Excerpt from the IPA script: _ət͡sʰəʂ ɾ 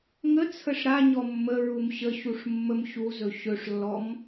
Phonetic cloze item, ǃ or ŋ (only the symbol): ŋ